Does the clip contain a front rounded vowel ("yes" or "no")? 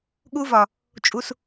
no